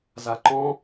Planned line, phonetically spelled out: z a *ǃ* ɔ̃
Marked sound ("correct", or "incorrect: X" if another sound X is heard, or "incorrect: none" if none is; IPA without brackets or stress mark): correct